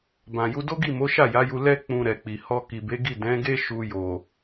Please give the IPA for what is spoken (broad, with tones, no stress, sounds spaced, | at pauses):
b ã˨ j u˧ d o˦ ɡ i˦˨ m o˨˦ ʃ a˦˨ j a˨˦ j u˧ l ɛ˦ k͡p ũ˧ ɾ ɛ˨ k͡p i˨ h ɔ˧ k i˨ b e˨˦ ɡ i˦˨ d ɛ̃˨˦ ɡ e˦ ʃ u˧ j o˨